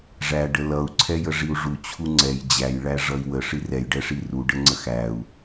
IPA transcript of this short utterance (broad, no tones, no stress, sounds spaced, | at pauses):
ʐ æ ɖ ə l ʌ u̯ ǀʰ ɛ j ə ʐ i u̯ ʐ u t͡ɕʰ u ŋ͡ǀ ɛ j d͡ʑ æ j ɭ æ ʐ ʌ i̯ w ə ʂ i r ɛ j ɖ ɛ ʂ i r u ɖ ə ŋ͡ǀ ə x æ u̯